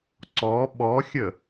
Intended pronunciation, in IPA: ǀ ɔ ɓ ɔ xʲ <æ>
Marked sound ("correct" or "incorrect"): incorrect